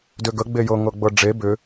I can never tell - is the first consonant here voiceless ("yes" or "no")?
no